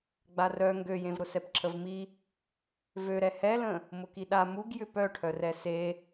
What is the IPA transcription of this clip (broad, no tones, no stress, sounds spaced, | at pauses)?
ɡ͡b a r œ ŋ ɡ ø j ẽ v ɾ ʊ s ɛ p ǁʰ ə v m i | v ø ɾ ɛ h ɛ l ə̃ | m ʊ k i ɗ a m u ɡ j ʏ p œ ʈʰ œ r ɛ s e